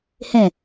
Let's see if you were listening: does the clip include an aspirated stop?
no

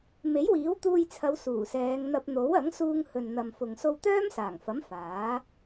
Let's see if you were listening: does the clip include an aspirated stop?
yes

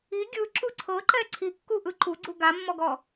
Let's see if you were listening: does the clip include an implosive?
no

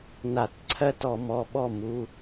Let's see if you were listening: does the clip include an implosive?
yes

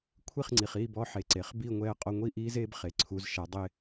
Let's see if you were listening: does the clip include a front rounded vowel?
no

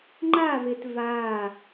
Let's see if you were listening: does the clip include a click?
yes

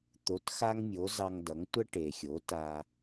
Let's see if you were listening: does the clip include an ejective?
no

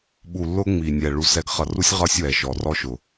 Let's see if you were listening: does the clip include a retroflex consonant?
yes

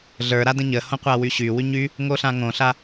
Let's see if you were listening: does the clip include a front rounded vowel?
yes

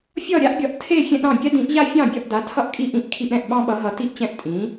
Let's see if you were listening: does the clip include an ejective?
yes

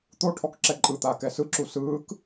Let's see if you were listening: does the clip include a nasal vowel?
no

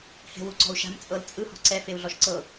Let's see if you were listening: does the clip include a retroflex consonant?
no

